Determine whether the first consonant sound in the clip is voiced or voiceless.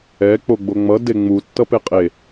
voiceless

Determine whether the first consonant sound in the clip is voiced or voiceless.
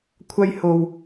voiceless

